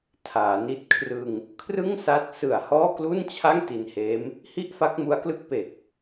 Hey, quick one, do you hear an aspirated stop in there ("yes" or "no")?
yes